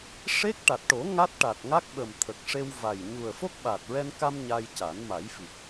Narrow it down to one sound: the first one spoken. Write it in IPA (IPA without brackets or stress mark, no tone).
ʂ